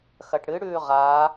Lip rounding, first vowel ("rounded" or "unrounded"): unrounded